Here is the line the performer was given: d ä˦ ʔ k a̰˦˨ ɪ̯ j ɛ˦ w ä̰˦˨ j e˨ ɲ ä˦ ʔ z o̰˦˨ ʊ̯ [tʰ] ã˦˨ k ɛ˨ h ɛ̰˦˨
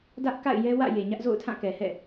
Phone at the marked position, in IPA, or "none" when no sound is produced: tʰ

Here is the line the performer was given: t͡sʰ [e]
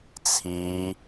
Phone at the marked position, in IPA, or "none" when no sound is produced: i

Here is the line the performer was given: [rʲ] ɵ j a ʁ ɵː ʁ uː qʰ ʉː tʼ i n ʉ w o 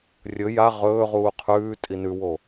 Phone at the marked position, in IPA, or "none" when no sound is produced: rʲ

